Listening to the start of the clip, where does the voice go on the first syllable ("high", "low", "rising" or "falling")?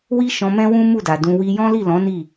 high